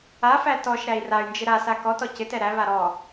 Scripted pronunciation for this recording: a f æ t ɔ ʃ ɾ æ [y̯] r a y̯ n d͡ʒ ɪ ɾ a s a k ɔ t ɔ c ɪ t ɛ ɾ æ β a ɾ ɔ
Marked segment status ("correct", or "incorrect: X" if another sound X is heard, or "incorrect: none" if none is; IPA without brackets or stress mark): incorrect: i̯